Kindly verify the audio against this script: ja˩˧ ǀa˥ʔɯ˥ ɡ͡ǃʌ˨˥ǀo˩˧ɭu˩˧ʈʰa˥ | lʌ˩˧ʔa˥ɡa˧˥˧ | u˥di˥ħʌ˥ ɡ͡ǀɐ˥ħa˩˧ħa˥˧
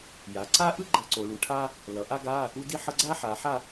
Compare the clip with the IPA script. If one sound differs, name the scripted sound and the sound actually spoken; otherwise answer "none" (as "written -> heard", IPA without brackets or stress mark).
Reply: ɐ˥ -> a˥